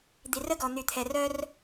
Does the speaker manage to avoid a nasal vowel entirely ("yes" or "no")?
yes